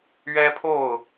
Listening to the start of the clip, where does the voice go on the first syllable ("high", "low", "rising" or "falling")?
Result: high